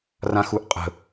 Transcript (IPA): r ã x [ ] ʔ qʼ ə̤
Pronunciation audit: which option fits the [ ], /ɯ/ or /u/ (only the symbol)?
u